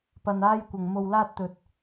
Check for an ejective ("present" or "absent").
absent